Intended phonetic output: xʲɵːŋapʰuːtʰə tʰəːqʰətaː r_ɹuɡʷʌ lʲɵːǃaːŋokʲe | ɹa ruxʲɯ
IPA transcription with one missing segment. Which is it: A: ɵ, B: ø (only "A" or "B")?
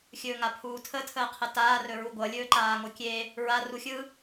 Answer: A